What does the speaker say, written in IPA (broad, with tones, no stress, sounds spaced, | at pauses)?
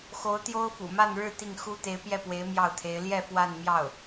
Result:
x o˧˥ ʊ̯ t̪ j o˥ ʊ̯ f ṵ˨˩ m a˥˧ n ɻ ɻ̩˥˧ t̪ i˥˩ ŋ x u˥ t̪ e˧˥ ɪ̯ p j ɛ˥˩ p w e˧˥ ɪ̯ m j ɑ˥˩ ʊ̯ t̪ʰ e˧˥ ɪ̯ l j ɛ˥˧ f w a˥˧ n m j ɑ˥˩ ʊ̯